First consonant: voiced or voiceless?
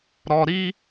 voiced